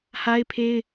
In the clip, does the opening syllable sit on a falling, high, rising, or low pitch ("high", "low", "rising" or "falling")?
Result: high